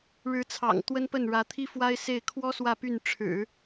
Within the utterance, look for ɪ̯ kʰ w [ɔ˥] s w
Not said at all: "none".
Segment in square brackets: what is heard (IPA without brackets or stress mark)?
ɔ˥